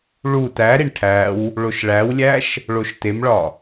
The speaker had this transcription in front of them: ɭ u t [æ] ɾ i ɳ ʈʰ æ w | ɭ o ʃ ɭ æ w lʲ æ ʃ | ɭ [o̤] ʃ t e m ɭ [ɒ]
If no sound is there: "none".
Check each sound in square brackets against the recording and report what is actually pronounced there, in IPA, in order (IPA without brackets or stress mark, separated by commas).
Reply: æ, o, ɒ